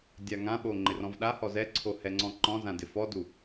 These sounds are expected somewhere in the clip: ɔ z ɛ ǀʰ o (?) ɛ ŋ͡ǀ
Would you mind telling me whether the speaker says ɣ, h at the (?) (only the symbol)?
h